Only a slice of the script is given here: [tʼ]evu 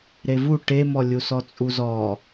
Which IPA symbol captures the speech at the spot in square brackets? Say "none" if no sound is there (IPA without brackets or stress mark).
ɾ